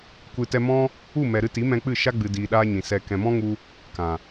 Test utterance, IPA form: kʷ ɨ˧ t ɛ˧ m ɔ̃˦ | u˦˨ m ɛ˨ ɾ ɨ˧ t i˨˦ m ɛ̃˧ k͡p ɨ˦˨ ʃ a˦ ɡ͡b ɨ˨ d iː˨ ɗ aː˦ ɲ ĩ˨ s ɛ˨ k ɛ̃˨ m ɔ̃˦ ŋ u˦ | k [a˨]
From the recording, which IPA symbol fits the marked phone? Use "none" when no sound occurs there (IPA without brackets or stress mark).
ã˨